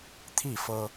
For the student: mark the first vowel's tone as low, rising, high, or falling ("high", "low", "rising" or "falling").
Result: falling